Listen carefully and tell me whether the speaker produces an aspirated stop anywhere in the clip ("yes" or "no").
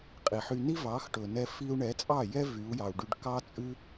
no